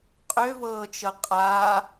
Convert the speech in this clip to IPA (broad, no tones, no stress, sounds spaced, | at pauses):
qʼ ø v ɤː t͡ʃ ɤ qʼ a